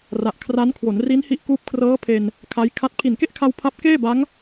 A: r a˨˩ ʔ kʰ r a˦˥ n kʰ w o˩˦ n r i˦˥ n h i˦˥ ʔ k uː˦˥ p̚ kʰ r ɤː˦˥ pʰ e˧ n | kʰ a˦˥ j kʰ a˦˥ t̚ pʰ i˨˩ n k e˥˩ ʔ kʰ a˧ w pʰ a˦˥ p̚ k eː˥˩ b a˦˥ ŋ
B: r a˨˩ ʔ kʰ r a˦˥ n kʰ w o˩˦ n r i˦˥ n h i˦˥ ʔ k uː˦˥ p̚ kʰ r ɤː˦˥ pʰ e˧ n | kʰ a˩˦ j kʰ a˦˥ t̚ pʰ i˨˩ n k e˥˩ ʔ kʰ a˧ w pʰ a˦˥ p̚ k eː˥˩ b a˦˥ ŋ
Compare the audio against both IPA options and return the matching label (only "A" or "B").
A